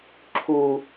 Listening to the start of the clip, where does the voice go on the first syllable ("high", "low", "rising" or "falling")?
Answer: low